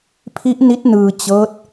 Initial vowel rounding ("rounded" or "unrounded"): unrounded